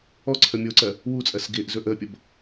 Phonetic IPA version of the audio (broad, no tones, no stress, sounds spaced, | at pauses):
ɔ ǀʰ ə mʲ o ǀ ɜ | w u t͡sʼ ɜ s ɡ ɪː ʔ z ɵ ʔ əː pʲ ʌ b